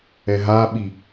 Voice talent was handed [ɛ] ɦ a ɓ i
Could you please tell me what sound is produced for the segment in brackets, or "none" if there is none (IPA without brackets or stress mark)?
ɛ